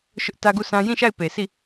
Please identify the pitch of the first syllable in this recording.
high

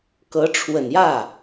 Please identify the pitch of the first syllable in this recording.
rising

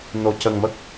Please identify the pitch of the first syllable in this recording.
low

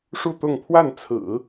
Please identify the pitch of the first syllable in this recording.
falling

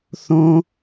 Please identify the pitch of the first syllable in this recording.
high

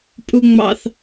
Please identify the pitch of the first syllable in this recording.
high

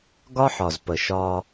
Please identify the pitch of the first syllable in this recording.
high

